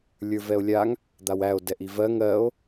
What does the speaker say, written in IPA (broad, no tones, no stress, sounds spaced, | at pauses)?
lʲ ə˞ v ɛ o̯ lʲ a ŋ | d̪ a w æ o̯ d ɛ ʔ i v ɜ ŋ ɜ o̯